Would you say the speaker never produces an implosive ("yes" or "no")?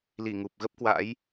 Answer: yes